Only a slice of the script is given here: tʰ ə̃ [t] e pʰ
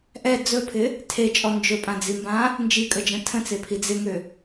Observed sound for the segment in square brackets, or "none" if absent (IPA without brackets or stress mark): t͡s